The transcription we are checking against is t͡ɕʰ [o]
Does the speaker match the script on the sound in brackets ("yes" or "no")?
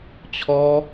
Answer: no